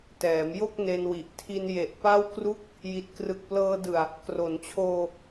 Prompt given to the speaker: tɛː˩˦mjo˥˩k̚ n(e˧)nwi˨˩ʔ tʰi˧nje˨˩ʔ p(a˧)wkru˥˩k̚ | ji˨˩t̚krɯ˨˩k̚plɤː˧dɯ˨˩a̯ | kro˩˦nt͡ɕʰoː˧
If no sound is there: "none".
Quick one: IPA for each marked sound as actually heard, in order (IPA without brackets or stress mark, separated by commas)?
e˧, a˥˩